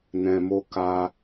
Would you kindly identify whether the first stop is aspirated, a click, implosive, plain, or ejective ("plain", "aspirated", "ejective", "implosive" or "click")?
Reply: plain